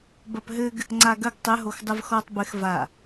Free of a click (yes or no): no